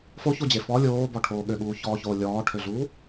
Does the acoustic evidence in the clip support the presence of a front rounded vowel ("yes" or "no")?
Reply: yes